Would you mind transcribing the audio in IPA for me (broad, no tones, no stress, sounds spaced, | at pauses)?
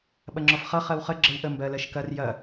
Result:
ɓ ɐ ŋ͡ǁ ɔ f χ ʌ χ ɜ w χ ə ɡ͡ǁ ə w ʔ ə m b ɜ l ɜ ʃ k ɐ r j ɐ